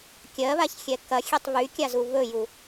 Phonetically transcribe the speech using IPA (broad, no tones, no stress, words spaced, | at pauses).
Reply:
kʲɜβaçxʲɛ kɐxʲetˤ βykʲazu βɵju